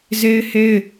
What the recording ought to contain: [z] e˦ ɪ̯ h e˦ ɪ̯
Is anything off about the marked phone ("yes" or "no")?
no